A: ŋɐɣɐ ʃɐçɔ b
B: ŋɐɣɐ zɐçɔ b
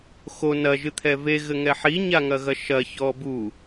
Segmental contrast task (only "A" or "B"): A